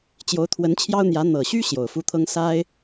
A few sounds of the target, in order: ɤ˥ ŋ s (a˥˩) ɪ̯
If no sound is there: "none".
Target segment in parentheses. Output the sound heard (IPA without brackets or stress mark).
a˥